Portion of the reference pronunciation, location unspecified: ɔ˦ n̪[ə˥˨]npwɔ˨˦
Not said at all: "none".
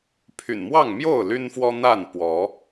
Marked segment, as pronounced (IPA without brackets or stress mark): a˥˨